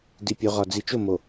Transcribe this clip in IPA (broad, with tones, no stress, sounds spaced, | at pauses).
d i˨ pʲ o˨ ʁ ɒ˨ d͡z i˨ t͡ʃ o˦˨ m o˨